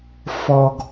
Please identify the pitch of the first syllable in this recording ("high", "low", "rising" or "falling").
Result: high